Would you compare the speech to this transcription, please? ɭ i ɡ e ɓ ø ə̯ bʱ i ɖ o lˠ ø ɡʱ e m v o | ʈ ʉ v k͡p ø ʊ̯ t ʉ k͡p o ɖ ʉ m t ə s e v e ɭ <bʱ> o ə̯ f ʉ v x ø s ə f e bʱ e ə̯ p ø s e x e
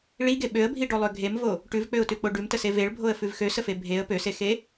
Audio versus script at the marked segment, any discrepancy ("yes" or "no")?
no